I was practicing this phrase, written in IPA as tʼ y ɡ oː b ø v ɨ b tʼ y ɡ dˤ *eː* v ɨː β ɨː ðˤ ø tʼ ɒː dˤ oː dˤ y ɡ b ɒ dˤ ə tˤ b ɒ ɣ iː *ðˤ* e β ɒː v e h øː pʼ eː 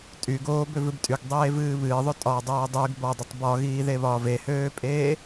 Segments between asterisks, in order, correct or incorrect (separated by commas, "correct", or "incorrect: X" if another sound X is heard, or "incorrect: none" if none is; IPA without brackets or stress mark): correct, incorrect: ð